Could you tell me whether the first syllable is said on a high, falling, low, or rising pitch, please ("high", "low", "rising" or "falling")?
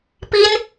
high